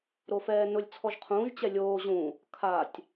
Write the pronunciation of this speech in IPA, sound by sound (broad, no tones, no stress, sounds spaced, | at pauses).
ɾ o f ɛː n ʊ lʲ t͡sʰ ɔ ʒ qʰ ũː ʒ t͡ɕ ɛ lʲ oː ʑ ũ | kʰ a tʲ